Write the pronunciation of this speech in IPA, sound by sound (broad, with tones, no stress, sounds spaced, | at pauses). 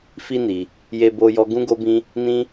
f i˦ n i˧ | j e˦ b o˦ j ɔ˦ ɡ ũ˦ ɡ o˦ b ĩ˦ | n ĩ˦